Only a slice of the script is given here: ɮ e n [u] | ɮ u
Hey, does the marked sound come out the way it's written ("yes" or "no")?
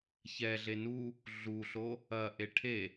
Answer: yes